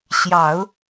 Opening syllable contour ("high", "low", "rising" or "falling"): low